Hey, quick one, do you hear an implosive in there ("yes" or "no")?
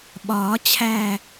yes